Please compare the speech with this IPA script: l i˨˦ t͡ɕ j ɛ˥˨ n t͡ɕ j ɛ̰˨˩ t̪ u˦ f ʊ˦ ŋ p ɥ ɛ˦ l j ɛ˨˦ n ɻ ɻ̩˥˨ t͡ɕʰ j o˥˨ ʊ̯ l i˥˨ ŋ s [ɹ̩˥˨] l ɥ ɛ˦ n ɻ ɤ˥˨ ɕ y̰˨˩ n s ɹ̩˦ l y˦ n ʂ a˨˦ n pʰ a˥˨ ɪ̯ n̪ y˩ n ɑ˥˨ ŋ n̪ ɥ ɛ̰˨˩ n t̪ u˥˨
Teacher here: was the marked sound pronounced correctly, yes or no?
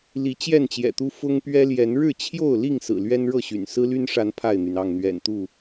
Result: no